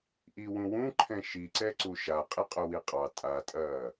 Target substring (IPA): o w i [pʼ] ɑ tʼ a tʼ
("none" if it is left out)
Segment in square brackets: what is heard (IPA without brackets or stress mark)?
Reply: qʼ